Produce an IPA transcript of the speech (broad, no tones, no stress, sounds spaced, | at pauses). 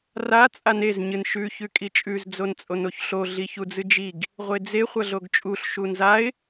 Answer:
r a t͡sʼ a n e z ɲ ɨ n ʃ ʉ ç ʉ kʼ i t͡ʃʼ ʉ z d͡z o n t͡sʼ o n o ç ɬ o ɮ i ç u d͡z ɨ d͡ʒ i ɡ | ʁʷ e d͡z e χʷ ɐ ɮ o ɡ t͡ʃʼ u ɬ ʃ u n z a ɪ̯